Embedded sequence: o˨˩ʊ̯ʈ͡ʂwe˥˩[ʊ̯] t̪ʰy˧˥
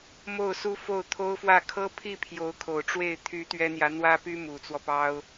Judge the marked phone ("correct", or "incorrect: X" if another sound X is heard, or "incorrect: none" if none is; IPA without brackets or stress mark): incorrect: ɪ̯